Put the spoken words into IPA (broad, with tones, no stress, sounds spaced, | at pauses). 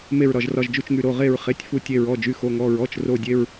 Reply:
m e˧˩ ɹ ɾ ɒ˧˩ ʒ r ɒ˧˩ ʒ d͡ʒ u˧˩ t͡ʃ ŋ y˧˩ ɾ o˩˧˩ ʁ e˧˩ ɹ χ e˩˧˩ tʲ f u˧˩ tʲ e˧˩ ɹ ɔ˩˧˩ d͡ʒ y˩˧˩ x o˩˧˩ ŋ ɔ˩˧˩ ɹ ɔ˩˧˩ t͡ʃ r o˧˩ dʲ e˩˧˩ ɹ